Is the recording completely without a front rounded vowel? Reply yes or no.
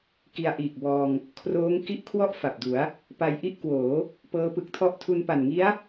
yes